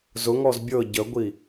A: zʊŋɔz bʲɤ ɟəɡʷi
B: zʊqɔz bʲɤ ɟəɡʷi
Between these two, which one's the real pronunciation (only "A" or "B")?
A